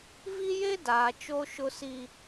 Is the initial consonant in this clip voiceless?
no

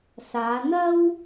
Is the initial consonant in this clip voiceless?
yes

